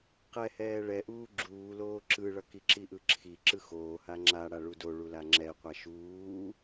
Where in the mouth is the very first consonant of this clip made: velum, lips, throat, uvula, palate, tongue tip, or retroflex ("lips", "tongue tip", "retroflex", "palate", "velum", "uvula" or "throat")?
uvula